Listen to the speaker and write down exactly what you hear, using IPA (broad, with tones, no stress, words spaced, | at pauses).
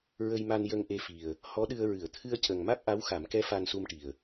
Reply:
ɹə˧jma˧n jə˧ŋʔe˧fi˨˩ə̯ | hɔ˧˥ɗɨ˧ə̯ ɹɨ˨˩˨ə̯t̪ʰɨ˧ə̯cə˨˩ŋ ma˦˥k̚ʔa˧˥wxa˨˩˦mkɛ˧˥ fa˧nsu˧mʈi˨˩ə̯